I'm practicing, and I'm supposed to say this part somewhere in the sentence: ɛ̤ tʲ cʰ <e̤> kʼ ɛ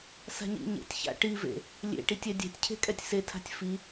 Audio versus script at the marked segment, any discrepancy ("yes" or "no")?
no